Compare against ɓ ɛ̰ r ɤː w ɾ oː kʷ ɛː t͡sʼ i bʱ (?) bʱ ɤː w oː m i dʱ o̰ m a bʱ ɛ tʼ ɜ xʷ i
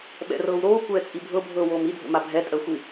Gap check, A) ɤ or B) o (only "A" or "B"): A